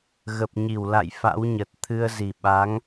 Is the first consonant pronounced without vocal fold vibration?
no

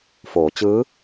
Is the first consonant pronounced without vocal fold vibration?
yes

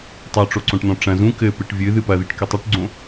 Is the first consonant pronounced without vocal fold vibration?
yes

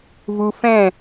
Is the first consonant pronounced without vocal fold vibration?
no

